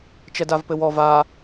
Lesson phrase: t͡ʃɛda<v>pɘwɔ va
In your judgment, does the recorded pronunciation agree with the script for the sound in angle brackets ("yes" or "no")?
yes